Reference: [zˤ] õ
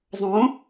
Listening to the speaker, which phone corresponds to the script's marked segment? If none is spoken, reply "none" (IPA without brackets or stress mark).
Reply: zˤ